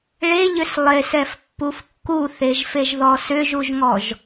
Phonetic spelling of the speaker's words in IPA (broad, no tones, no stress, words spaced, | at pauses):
ɭeʎʏs lˠesɛfpːuf kːuθeʒfeʒðɔ sʏʒuʒŋɔʒ